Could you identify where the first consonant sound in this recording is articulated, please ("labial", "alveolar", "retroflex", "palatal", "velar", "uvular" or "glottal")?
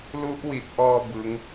alveolar